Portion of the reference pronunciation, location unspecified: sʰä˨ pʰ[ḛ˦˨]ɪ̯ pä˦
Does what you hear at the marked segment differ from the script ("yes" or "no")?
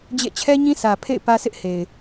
no